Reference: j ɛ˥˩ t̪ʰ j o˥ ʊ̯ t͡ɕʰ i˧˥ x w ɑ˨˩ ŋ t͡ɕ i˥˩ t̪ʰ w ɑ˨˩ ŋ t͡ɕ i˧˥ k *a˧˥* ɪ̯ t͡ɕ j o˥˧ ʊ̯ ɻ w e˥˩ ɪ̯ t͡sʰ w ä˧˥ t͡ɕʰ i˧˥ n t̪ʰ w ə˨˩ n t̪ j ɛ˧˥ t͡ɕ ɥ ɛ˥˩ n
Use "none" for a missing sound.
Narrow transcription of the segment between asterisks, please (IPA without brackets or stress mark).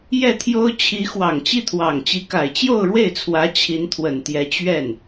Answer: a˨˩